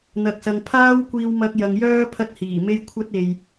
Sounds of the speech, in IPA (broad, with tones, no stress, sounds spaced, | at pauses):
n̪ ɐ˨ k̚ s ɐ˨ ŋ pʰ aː˥ w kʷ iː˧ w m ɐ˧ k̚ j ɐ˨ ŋ j œː˥ pʰ ɐ˧ t̚ h iː˨˩ m e˧ j kʷʰ ɐ˥ t̚ e˨ j